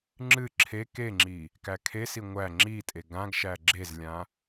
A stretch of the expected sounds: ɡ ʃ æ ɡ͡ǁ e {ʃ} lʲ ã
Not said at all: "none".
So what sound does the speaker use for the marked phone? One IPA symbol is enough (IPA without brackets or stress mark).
z